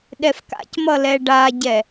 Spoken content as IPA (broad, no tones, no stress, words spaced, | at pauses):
ɗɛfka̰cmʌ lɛɖaɟɛ